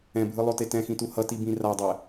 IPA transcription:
ɛ̃ bʱ ɯ lˠ o t e t ɛ̃ x ĩ t u h ʌ t i b ĩ r a dˤ ɛ

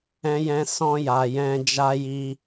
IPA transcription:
ɛ̃˧ j ɛ̃˧ s ɔ̃˦ j a˧ j ɛ̃˧ d͡ʒ a˧ j i˧

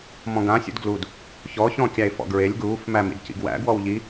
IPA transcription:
m ɔ̃ ɡ ã sʲ ṵ d ɡ l u d | ç ɔ ç ɔ̃ kʲ æ e̯ f ɔ̰ ɡ ɹ e lʲ ɡ uː f m æ m ḭ d c ḭ ɡ w æ̰ ɡ w ɔ w ʎ i

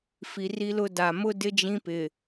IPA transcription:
f i˨ r i˦ l ʊ˦ d a˨ m ʊ˦ d ɪ˦ d͡ʒ ĩ˦ p ɪ˨

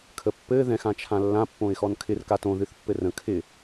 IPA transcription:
kʰ ə pː ɘ ð ɛ̃ x ã t͡ʃʰ ã lː ã pː õ ɪ̯ x ɔ n kʰ ɪ r k a t õ ð ɨ θ pː ɘ r ə̃ kʰ ɪ

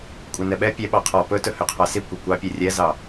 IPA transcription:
kʷʼ ɛ n ɛ ɓ ɛ pʲ ɛ ɓ ɑ qʰ ɔ p ɵ t ɵ h ø qʰ ɑ s i kʷ i kʷ ɑ pʲ ø rʲ ɛ z ɑ

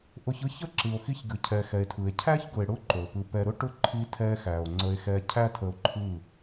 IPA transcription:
ʔ ʊ˧ ç ɯ˦ ç ə˦ ǁ ɨ˨ o̯ x i˧ ç ɡ ɨ˨ cʰ ɛ˨ x ɛ˨ e̯ tʰ ɯ˨ e̯ cʰ æ˦ ç ɡ ʊ˨ e̯ ɽ ʊ˦ ǃ o˨ p ɯ˧ p ɛ˧ ɾ ʊ˧ ʈ ʊ˧ ǃʰ i˧ tʰ ɛ˧ x æ˨ o̯ ŋ͡ǀ ə˧ e̯ x ɛ˧ cʰ æ˦ tʰ ə˧ o̯ ǃʰ ɯ˦˨

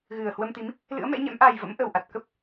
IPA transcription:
ɣ ɨ˨˩ ə̯ h w ə˧ m t̪ i˨˦ m | l ɨ̰˧˥ ə̯ m ɛ̰˧˥ ɲ ɛ̰˧˥ m ʔ a˨˩ j v ə̰˧˥ m ʔ ə˨˩ w ʔ a˨˩ t̚ k ə˦˥ p̚

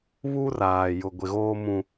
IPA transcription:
β u˦ r aː˨ j ʊ˨ ɡʷ ɪ˨ ɣ oː˦ m ũ˦

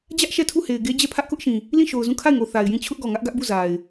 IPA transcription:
d͡ʑ ä˦ ʔ ʃ ɛ˦˨ tʰ u˦˨ h e˨ ɪ̯ ɡ e˦ d͡ʑ ɛ˦˨ pʰ ä˦ ʔ k ʊ˦ ʔ ʃ ĩ˨ | l ĩ˦˨ ʃ o˨ ʊ̯ z ũ˦˨ kʰ a˦˨ ɪ̯ ŋ o˨ θ a˨ ɪ̯ j ĩ˦˨ t͡ɕʰ ʊ˦ ʔ ɡ ɔ˨ ŋ ä˦ ʔ ɡ ä˦ ʔ b u˦˨ z a˨ ɪ̯

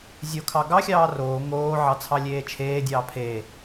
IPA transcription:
zʲ o kʰ ɑ ɡ ɑ xʲ ɑː r oː ŋ oː ʕ ɑ t͡sʰ ɑ lʲ eː t͡ʃʰ eː dʲ ɑː pʰ e

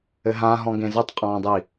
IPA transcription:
ɘ ɦ ã ɦ ɔ̃ ɡ ẽ z ɘ tˤ qʼ ɔ̃ː dˤ i

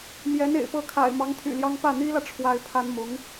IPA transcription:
m j ɛ˧˥ n ḛ˨˩ ɪ̯ p ɤ˧˥ kʰ a̰˨˩ ɪ̯ m ɑ˧˥ ŋ t̪ʰ y̰˨˩ l j ɑ˥ ŋ p ä˥˩ n̪ i˥ l ä˨ ʈ͡ʂʰ w a˥ ɪ̯ pʰ a˥ n m ʊ˧˥ ŋ

